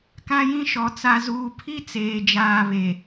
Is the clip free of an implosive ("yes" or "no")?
yes